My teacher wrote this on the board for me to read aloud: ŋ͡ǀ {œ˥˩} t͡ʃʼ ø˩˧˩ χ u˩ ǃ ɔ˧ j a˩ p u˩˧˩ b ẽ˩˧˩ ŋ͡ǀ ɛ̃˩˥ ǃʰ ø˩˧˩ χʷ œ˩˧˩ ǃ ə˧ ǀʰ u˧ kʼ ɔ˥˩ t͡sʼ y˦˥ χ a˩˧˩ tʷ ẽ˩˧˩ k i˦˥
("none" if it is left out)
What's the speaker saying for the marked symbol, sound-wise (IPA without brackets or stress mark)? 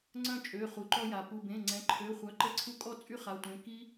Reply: œ̃˥˩